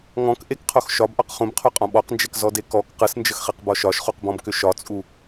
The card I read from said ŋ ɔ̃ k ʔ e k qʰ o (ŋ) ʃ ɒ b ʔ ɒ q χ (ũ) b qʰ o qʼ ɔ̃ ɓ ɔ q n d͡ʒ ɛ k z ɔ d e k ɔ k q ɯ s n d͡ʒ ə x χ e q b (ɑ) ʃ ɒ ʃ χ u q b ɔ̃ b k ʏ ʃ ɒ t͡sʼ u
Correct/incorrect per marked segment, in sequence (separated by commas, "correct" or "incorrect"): incorrect, correct, incorrect